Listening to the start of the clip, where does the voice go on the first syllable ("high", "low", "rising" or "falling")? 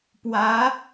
rising